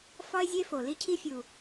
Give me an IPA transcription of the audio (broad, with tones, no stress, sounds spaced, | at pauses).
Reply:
f ɒ˦ ɪ̯ zʲ e˦ f o˨ l i˦ cʰ i˦ fʲ u˨